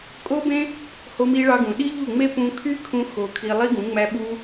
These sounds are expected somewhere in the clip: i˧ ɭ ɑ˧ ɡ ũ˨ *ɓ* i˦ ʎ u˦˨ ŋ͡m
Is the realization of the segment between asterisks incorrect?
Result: yes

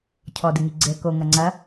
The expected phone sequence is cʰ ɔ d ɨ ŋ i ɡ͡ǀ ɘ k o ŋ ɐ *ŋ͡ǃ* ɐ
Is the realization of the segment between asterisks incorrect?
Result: yes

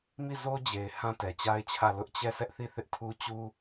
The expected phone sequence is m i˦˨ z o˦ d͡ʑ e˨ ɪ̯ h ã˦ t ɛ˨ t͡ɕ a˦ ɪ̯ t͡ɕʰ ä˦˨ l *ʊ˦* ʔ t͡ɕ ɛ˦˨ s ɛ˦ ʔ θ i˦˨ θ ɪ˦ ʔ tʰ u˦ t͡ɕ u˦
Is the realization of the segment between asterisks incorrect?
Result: no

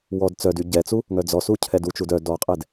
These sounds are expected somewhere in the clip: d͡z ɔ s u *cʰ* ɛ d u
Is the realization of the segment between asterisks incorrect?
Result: no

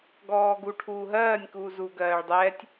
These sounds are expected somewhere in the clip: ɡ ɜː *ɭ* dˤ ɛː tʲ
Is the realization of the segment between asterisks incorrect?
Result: no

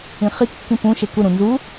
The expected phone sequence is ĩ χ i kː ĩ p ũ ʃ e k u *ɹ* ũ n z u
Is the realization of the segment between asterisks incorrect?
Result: yes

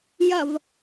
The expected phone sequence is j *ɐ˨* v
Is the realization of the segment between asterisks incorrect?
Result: no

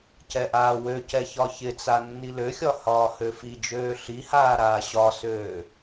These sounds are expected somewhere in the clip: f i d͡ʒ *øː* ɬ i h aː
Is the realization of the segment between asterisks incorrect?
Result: no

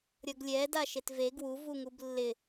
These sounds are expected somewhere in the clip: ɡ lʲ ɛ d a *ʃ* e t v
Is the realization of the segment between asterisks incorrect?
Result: no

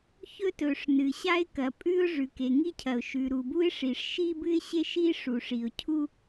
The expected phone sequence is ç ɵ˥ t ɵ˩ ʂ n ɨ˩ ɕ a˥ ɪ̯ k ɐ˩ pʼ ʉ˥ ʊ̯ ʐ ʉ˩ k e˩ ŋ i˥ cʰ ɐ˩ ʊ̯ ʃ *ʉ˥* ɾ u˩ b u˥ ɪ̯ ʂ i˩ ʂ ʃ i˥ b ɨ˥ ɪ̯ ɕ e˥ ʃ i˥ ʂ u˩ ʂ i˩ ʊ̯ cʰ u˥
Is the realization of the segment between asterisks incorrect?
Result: yes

